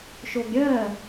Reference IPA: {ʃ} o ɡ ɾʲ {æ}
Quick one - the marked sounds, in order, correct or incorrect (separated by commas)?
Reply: correct, incorrect